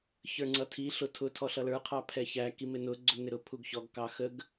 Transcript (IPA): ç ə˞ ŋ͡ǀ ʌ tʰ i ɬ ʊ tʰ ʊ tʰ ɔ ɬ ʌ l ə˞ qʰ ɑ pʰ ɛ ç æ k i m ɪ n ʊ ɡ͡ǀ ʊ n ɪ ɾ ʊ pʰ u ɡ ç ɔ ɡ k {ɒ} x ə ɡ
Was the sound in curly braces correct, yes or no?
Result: no